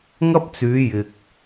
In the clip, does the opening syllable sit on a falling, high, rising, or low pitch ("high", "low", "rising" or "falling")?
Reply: high